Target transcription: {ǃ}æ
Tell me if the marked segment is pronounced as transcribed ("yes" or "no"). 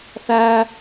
no